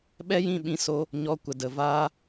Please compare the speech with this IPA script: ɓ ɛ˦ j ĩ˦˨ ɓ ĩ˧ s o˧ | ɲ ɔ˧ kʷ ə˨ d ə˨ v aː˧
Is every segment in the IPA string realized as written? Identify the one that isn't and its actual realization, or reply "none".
none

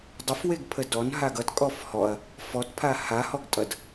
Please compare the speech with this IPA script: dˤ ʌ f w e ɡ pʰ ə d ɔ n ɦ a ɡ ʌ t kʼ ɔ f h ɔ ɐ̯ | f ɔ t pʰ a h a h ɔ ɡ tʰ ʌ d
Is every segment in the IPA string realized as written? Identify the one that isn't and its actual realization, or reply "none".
tʰ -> tʼ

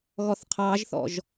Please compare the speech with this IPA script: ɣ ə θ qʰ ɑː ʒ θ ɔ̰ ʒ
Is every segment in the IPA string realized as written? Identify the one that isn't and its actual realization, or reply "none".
ə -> ɔ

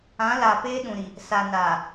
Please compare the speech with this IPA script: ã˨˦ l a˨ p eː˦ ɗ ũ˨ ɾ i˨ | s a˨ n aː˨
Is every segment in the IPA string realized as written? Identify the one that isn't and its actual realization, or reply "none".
none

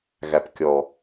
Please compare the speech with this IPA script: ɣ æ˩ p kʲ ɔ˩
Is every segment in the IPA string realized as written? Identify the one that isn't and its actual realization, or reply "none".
none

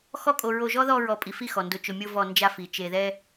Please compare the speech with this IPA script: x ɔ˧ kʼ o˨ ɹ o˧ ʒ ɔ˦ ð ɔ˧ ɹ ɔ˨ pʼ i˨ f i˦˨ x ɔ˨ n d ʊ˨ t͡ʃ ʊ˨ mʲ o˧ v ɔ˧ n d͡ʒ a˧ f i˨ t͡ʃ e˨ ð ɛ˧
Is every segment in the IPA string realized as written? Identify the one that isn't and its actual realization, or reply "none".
none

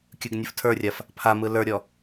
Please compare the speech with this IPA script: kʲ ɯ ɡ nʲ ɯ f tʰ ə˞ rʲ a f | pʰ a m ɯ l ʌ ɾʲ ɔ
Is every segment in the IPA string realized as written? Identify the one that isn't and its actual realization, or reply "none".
ʌ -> ə˞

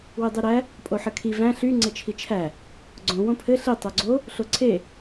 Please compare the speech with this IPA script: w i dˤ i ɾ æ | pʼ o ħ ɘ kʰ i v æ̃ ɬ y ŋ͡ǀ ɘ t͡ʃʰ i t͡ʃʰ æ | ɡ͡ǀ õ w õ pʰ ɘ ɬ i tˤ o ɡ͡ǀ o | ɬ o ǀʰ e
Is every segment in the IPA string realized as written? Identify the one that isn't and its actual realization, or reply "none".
none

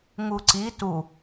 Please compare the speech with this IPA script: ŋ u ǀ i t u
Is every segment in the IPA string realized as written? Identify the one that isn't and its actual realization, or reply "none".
none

